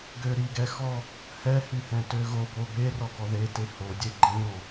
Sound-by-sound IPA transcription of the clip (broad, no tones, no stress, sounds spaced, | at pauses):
ɡ ø ɾ i ɡ ɛ x ɔ | h ɛ h y h ɛ̃ t ø ɣ o b o b e r ɔ ɡ ɔ ð e t e h o dʲ e ɡ͡ǃ ĩ ɾ ɔ̃